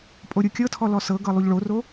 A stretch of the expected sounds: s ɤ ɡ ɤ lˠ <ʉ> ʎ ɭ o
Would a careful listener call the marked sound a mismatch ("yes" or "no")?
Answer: yes